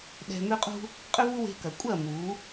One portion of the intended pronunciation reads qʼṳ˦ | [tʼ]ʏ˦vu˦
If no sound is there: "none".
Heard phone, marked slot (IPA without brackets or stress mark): qʼ